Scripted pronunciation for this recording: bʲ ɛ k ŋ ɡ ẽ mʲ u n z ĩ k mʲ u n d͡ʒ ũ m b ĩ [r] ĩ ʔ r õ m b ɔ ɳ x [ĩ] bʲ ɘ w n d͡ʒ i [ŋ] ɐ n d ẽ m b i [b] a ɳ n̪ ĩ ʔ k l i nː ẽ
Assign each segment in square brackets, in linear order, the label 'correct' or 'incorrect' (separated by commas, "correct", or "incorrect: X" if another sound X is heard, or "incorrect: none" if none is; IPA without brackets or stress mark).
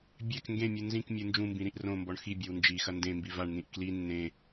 incorrect: ɾ, incorrect: i, incorrect: x, incorrect: v